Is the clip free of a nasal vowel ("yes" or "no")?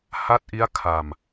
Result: yes